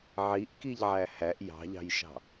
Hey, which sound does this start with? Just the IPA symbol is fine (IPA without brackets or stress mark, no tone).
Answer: ʕ